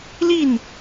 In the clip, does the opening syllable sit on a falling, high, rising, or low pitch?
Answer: falling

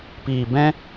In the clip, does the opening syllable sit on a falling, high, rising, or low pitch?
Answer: low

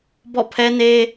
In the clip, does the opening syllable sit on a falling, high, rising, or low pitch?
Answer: falling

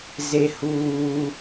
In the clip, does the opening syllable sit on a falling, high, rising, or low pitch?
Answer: high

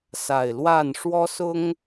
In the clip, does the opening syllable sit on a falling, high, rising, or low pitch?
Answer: low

